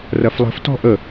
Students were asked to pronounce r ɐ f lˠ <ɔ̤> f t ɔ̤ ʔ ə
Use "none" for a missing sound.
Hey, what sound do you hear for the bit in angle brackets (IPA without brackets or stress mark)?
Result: ə̤